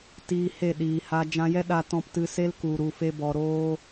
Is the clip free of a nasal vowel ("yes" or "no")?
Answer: no